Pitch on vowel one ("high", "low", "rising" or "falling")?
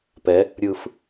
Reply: rising